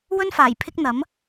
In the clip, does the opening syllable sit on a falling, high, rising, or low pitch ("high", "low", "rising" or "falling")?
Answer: high